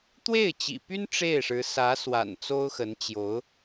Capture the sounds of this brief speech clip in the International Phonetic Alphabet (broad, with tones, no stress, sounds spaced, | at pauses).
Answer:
t̪ w e˥˩ ɪ̯ t͡ɕ ḭ˨˩ p y˥ n ʈ͡ʂ e˥˩ ɪ̯ ʂ ɻ̩˧˥ s ä˧˥ s w a̰˨˩ n t͡s o˥ ʊ̯ x ə˧˥ n t͡ɕ j o˧˥ ʊ̯